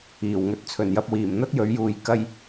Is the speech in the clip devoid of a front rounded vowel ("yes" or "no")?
yes